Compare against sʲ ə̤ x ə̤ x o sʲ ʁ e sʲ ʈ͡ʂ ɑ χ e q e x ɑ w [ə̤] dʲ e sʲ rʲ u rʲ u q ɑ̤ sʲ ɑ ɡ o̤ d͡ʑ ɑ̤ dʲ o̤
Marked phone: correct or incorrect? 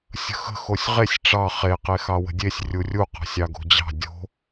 correct